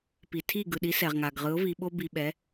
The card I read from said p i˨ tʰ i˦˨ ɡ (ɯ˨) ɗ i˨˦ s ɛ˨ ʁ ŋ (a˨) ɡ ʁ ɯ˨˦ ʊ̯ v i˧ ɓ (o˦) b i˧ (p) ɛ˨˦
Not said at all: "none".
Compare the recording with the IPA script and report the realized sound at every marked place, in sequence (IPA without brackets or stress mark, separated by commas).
ɯ˨, a˨, o˦, ɓ